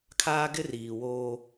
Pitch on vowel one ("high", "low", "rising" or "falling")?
high